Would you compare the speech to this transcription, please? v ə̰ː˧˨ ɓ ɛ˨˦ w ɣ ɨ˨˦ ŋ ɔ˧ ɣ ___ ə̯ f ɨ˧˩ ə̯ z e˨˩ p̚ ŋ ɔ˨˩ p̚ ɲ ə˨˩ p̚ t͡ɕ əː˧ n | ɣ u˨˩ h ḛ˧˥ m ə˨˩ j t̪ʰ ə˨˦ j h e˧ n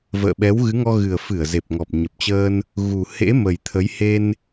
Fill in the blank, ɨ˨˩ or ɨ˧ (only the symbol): ɨ˨˩